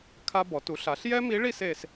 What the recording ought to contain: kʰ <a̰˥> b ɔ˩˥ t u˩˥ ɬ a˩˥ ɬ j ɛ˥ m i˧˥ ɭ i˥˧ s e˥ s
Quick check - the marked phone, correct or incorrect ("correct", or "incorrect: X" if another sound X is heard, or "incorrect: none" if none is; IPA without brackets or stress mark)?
incorrect: a˥